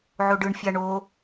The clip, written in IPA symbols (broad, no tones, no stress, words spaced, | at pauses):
ʕoɖɯɳ fʲaɳo